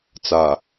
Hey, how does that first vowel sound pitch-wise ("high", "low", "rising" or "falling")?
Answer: low